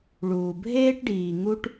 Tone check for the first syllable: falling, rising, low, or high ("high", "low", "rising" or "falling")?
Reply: low